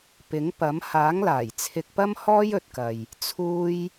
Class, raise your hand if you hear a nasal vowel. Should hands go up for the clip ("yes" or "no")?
no